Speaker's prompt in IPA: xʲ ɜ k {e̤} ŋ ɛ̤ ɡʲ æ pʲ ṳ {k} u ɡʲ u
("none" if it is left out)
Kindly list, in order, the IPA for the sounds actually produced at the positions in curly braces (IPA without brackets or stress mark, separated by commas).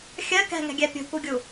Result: ɛ̤, k